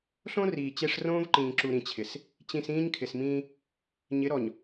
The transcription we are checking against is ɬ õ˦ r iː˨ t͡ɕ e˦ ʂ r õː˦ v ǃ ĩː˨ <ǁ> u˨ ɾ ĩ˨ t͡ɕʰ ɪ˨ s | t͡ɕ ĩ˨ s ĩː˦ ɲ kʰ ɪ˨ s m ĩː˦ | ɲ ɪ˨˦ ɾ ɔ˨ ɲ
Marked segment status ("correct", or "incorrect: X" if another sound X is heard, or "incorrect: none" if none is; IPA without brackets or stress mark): correct